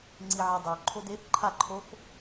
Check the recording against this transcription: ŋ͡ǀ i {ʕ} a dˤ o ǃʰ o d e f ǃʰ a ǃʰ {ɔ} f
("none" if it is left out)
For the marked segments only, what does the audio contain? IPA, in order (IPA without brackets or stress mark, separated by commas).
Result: ʕ, o